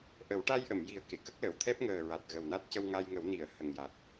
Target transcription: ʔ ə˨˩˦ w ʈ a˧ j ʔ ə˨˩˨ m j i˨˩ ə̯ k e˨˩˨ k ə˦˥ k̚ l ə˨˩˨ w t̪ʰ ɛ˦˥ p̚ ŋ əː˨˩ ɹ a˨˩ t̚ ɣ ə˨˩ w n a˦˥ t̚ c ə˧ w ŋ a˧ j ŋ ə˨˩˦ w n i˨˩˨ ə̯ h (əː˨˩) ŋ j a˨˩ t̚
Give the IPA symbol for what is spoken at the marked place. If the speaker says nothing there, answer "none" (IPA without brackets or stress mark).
ə˨˩